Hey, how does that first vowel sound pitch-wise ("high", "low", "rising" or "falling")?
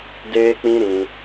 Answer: high